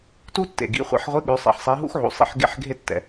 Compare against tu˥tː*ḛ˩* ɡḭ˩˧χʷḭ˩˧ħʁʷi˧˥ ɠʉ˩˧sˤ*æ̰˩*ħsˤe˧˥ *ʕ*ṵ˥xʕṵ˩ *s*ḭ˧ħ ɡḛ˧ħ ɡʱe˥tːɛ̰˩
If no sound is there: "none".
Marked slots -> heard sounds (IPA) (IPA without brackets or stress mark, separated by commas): ḛ˩, ɛ̰˩, ɦ, sˤ